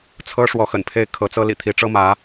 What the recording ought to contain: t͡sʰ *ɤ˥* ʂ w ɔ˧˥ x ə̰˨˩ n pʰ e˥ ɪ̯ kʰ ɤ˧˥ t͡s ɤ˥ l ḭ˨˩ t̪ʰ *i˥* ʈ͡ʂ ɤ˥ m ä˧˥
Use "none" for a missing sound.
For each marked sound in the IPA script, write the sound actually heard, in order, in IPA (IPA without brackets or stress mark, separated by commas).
ɤ˥, i˧˥